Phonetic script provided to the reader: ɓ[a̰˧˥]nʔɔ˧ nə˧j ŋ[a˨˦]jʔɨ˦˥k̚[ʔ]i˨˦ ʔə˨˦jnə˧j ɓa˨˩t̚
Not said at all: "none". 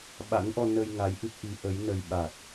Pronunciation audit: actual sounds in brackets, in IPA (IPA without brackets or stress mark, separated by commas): a̰˧˥, a˨˦, ʔ